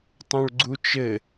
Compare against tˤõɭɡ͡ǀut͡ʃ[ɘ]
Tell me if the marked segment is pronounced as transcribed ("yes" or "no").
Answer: yes